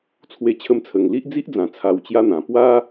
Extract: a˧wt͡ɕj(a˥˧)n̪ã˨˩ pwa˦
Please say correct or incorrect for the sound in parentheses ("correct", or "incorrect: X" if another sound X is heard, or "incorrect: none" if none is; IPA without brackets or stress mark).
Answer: incorrect: a˦